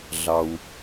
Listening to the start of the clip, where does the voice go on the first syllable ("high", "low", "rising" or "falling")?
low